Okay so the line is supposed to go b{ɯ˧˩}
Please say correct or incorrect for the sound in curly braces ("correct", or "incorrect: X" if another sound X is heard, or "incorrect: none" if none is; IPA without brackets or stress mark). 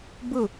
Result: incorrect: ɯ˥˩